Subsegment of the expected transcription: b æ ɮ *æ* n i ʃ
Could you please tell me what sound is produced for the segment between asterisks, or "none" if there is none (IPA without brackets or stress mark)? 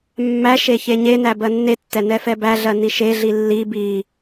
ɜ